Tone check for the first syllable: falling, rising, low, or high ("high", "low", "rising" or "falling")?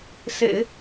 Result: low